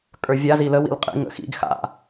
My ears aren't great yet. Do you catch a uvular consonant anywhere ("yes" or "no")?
yes